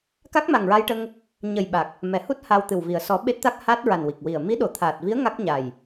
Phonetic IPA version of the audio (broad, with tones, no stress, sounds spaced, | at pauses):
k a˦˥ k̚ m a˨˩ ŋ ɹ a˧ j ʈ ə˧ ŋ | ɲ ə˨˩ j ɓ a˨˩ k̚ | m ɛ˨˩˨ h u˦˥ t̚ h a˧ w t̪ ɨ˨˩ w v i˨˩ ə̯ s ɔ˨˩˦ ɓ e˦˥ t̚ t̪ a˦˥ k̚ h aː˦˥ t̚ ɹ a˨˩ n w i˨˩ k̚ w i˨˩ ə̯ m i˧˥ ɗ o˨˩˨ t̪ʰ aː˨˩ t̚ v i˧˥ ə̯ ŋ a˦˥ k̚ ɲ a˨˩ j